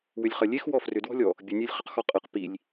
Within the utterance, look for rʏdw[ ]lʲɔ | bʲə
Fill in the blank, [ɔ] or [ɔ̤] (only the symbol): ɔ̤